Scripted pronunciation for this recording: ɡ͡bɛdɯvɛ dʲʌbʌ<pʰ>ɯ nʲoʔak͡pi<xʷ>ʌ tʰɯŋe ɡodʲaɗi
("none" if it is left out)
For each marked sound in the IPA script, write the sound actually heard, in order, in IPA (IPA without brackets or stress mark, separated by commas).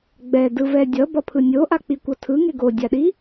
pʰ, kʷ